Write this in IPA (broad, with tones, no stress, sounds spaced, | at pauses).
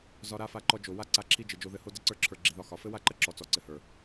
z ɒ˧ ɾ a˦ f a˧ ǃ ɔ˧ d͡ʒ o˨ w a˦ ǀ a˧ ǁʰ i˦ d͡ʒ ɘ˨ d͡ʒ o˧ ð ɘ˧ h o˦ d ə˦ ǀ ə˞˧ ǁʰ ə˞˨ ɡ͡ǁ i˨ ð ɒ˧ x ɒ˨ f ɘ˦ w a˦ ǃ ə˦ ǁ ɔ˨ t͡s ɔ˨ ǀ ɘ˨ h ə˞˨